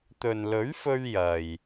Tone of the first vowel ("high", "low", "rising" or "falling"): low